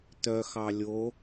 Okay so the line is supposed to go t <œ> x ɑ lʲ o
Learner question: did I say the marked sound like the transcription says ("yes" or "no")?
yes